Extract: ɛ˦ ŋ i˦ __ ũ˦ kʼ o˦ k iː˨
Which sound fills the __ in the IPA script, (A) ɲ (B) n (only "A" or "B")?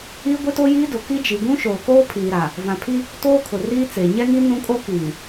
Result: B